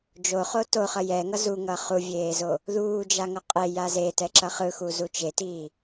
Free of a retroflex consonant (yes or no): yes